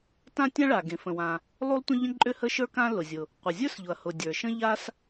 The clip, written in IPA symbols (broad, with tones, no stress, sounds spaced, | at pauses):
t ã˥ tʲ ã˥ ɭ a˩ ɡ ẽ˩ f ə̃˩ w ã˩ | lˠ u˥ lˠ tʷ ə̃˥ ʎ ə̃˥ ǃʼ ʏ˥ h ə˥ ʃ ə˞˥ k ã˥ l ʊ˩ zʲ ʊ˩ | qʷ ə˩ zʲ ə˞˥ s ʎ ʊ˩ ɐ̯ h ʊ˩ dʲ ə˞˩ ʃ ə̃˥ ʎ a˥ s